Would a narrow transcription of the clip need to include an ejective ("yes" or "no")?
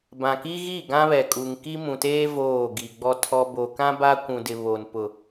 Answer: yes